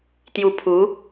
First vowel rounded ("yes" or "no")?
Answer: yes